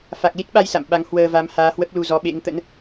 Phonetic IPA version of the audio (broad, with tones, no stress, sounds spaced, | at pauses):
f a˨˩ k̚ l i˦˥ t̚ ɓ a˧ j s a̰˧˨ m ɓ a˨˦ ŋ h w əː˧ v a˨˦ m h aː˨˦ h w ə˦˥ p̚ l u˧ z ɔ˨˦ ɓ ḛ˧˥ ŋ t̪ ə̰˧˥ n